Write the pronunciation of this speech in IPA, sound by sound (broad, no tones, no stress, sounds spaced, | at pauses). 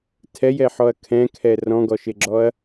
tʰ ɛ j ɛ ħ ɔ ɐ̯ kʰ ɛ̃ kʰ ɛ r ɔ̃ ɡ ɔ ʃ e ɡ͡ǁ ɔ ɐ̯